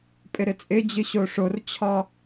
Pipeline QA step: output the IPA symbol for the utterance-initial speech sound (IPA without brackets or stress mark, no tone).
pʼ